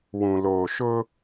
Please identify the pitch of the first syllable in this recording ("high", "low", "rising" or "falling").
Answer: low